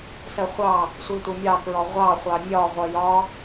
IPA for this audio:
s ɜ χʷ ɑ | sʷ i tʷ ɪ mʲ ɑ k ɹ ɔ ʁʷ ɑ χʷ ɑ mʲ ɒ ʁʷ ʌ j ɒ

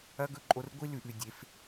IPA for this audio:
ɐ˦ ɡ ɵ˦ ǃʼ o˧ r ɡʷ i˦ l ʉ˨ ʔ ʉ˨ dʲ e˨˦ f

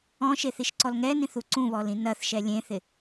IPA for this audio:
ɔ̃ ʃ e θ i ʃ ǀ ɔ l ŋ ɛ n ĩ θ u ǀ ũ β ɔ l ĩ n ɐ θ ʃ ɛ lʲ ẽ θ ɪ

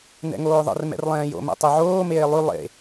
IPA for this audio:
n ɛ̰ ŋ oː ðˤ ə̰ r m ɛ̰ r lˠ ɛ̃ː j o̰ m ɛ̰ tˤ y ʕ oː m eː lˠ y lˠ ḛ

